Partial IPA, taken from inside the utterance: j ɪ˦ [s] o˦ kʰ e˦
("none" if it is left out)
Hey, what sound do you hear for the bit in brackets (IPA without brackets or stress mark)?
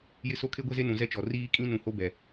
s